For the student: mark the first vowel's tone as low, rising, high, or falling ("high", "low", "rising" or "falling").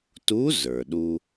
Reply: rising